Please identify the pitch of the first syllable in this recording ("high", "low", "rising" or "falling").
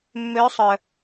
rising